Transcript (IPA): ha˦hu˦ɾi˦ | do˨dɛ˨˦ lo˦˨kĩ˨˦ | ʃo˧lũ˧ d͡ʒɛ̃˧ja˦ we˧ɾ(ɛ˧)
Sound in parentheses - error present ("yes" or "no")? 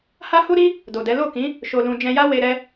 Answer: no